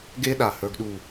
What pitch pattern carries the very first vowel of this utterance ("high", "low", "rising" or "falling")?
high